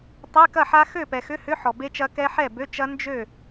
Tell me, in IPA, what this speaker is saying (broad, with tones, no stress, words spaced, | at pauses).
tˤe˧˥˧kɐ˥˨ħa˦˥ xø˥˨pɛ˨xʏ˧˥˧hʏ˧˥˧ ħɔ˨be˦˥t͡ʃɐ˦˥kɛ˦˥ ħɛ˥˨bø˧˥˧t͡ʃɐ˦˥ nd͡ʒø˥˨